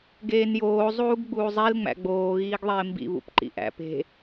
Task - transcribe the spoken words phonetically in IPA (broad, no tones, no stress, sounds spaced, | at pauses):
ɡ eː n j oː zˤ uː ɡ ɡ͡b uː zˤ i l ŋ͡m æ̰ ɡ͡b oː ɣ iː ɡ ðˤ eː m b ḭ β ṵ p ǃ ḭ ʔ æ̰ p e̤